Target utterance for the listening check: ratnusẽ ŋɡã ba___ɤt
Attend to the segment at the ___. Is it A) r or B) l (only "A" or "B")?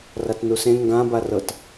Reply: A